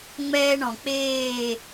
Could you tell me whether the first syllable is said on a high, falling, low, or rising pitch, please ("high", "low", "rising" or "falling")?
high